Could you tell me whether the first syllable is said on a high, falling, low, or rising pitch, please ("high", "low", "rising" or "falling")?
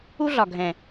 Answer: high